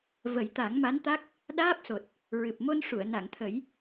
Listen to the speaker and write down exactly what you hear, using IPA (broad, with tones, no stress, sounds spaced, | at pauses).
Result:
v ə˨˩˦ j t̪ a˨˩˦ ŋ m a˧˥ n t̪ a˦˥ k̚ | ɗ aː˦˥ p̚ s o˨˩ t̚ | ɹ ɨ˨˩ p̚ m o˧ n ʂ u˨˩˨ ə̯ n a˨˩˨ ŋ t̪ʰ ə˨˩˦ j